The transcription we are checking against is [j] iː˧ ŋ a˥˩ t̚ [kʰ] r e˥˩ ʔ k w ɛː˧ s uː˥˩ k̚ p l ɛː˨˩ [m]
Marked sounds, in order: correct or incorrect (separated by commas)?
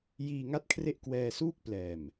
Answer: correct, correct, correct